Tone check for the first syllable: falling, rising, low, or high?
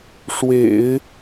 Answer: low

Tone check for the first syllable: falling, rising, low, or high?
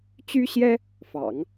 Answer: high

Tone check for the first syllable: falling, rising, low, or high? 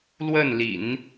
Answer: falling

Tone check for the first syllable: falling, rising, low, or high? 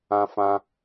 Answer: high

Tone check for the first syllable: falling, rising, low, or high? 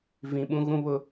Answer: low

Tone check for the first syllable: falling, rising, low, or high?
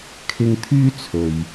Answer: high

